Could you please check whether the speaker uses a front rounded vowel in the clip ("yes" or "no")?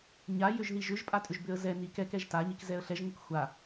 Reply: yes